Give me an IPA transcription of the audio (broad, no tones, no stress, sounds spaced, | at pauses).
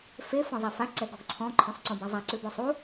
f e f ɔ̃ zˤ ɛ f a ǀ ɛ ɡ ɔ ɡ ǀʰ ɔ̃ ǃʰ õ sˤ ǀ õ b a zˤ a ǀ ʉ b o sˤ u